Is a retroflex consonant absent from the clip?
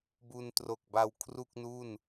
yes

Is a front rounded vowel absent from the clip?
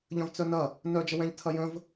no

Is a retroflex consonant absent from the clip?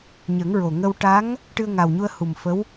no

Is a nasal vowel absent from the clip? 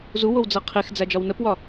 yes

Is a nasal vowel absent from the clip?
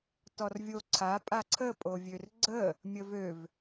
yes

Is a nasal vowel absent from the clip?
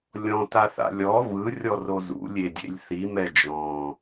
no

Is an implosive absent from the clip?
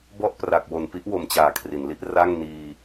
yes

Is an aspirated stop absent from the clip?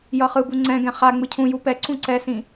no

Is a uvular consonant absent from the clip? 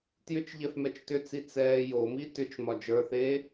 yes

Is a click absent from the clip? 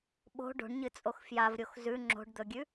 no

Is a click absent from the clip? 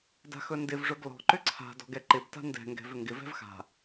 no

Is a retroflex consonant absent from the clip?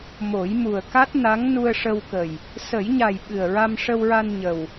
no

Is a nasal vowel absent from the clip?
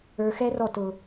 yes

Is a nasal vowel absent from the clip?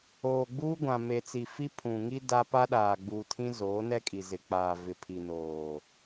no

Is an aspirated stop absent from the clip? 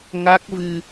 yes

